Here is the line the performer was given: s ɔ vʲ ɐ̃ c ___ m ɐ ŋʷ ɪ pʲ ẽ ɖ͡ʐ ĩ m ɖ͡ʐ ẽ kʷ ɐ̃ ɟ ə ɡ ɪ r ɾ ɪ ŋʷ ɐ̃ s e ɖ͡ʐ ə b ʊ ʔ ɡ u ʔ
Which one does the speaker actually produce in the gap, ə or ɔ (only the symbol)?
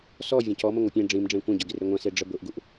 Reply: ɔ